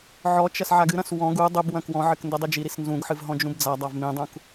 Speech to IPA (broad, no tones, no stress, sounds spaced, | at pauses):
ʕ ɔ t͡ʃ ɐ s ʕ a ɡ ɨ ɾ ɐ̃ s w ɔ̃ ɡ u dˤ ɨ b w ɐ̃ k w ɔ̃ ʕ ɘ k n d ɘ dˤ i d͡ʒ i ɾ i s n z ũ ɡ ħ ɨ v ɦ ɔ̃ d͡ʒ ũ b d͡z a dˤ a v m ĩ dˤ ũ k